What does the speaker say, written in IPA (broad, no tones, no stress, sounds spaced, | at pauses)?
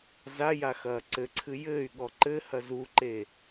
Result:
z a j a x ɐː ǀ ɘ ǀʰ ɨ j ɘː y̯ ɠ ɔ ǃ ɘ h ɐ z u ǃ e